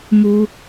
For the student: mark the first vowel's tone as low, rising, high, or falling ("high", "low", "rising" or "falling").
high